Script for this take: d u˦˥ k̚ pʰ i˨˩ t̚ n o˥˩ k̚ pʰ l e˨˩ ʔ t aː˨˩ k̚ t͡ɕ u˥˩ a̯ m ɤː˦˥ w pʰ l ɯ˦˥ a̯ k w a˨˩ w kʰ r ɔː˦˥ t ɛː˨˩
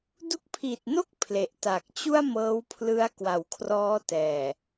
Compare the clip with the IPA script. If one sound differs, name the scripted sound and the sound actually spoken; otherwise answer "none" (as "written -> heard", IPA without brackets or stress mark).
none